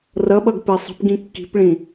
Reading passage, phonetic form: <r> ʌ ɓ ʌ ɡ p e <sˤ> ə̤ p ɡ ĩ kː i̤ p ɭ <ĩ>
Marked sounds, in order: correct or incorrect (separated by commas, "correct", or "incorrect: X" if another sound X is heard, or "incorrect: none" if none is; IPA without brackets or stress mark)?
correct, correct, correct